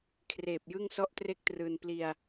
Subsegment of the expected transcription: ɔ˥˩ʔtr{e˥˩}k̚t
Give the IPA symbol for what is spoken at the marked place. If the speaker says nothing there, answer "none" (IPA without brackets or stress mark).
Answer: e˥˩